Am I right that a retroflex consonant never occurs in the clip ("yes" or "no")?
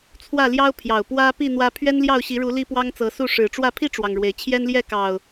no